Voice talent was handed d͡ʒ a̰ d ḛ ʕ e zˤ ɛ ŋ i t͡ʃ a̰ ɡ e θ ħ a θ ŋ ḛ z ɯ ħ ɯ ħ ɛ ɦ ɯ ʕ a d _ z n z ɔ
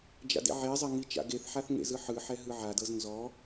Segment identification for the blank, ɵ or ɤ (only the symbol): ɤ